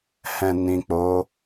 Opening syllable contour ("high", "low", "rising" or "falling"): low